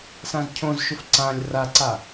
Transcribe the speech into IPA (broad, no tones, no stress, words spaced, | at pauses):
sãzcʰõzʃʊf ǀãlʲ raǀa